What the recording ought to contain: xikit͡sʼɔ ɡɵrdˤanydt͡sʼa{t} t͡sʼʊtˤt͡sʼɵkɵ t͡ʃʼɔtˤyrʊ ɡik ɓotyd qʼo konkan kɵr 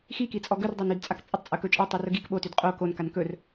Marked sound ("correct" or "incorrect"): incorrect